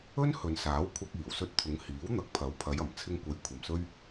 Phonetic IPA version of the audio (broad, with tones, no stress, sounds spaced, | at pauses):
ɵ˥ n h ɵ˨ n s aː˨˥ w kʷʰ ɐ˧ k̚ iː˨˩ w s ɵ˧ t̚ t̪ʰ ʊ˨˧ ŋ h iː˨˥ w n̪ ɐ˨˥ k̚ pʰ ɐ˨˥ w pʰ ɐ˨˧ j ɐ˨˩ m t͡sʰ ɪ˧ ŋ kʷ ɐ˨˧ j kʷʰ ɐ˨ m s ɵ˥ ɥ